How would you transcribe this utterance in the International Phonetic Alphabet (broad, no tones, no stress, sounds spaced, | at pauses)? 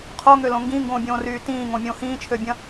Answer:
qʰ o ŋ ø l õ ŋ ɡ ĩ ŋ ɡ õː bʲ õː r yː t ĩː ŋ õ mʲ õː h ĩː t͡ʃʰ ø bʲ ɐ̃